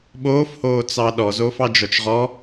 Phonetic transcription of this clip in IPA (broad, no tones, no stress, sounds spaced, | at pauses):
ɓ oː f h oː t͡s ɑ ɗ ɔ z oː f ɑ d͡ʒ ɔ t͡ʃ ʁ ɔ